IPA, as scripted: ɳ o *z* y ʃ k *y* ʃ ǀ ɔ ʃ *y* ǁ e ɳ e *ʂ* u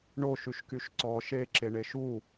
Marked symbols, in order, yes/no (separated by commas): no, yes, no, no